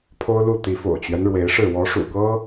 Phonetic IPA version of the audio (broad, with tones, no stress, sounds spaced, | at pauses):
pʰ o˦ ʊ̯ l u˥˨ t̪ i˨˦ f o̰˨˩ ʊ̯ t͡ɕ ɥ ɛ˦ n ɻ w e˨˦ ɪ̯ ʂ ɻ̩˥˨ w ɔ˨˦ ʂ ṵ˨˩ k ɤ˦